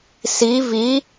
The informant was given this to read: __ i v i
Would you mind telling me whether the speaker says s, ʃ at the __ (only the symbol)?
s